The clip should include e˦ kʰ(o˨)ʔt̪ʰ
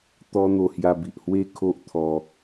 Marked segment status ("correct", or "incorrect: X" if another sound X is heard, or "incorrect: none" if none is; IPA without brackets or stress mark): incorrect: o˦